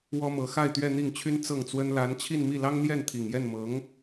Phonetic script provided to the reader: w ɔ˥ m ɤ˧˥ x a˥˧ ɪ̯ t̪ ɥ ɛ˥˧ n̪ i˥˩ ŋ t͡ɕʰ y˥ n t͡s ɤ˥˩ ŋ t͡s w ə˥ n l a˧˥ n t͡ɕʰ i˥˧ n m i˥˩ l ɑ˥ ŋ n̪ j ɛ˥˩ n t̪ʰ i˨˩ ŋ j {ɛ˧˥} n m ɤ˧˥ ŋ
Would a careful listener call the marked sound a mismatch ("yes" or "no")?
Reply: yes